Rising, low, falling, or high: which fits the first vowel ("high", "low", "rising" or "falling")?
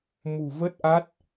low